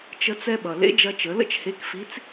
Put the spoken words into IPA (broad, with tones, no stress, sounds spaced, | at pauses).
t͡ʃ ə˧ t͡s ɛ˧ ɓ ʌ˩ l ḛ˧˥ d͡ʒ ɐ˧ t͡ʃ ə˩˧ l ə̰˥ t͡ʃ h e˧˥ k f i˧˥ t͡s